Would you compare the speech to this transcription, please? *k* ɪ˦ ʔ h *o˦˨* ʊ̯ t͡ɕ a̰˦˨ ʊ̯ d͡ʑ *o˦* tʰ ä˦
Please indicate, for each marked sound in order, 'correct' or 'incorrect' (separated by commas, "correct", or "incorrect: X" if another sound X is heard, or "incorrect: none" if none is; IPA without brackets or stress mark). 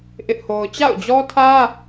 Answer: incorrect: ʔ, incorrect: o˦, incorrect: ɔ˦